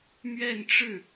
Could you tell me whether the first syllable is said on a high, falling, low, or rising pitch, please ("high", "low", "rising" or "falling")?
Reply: falling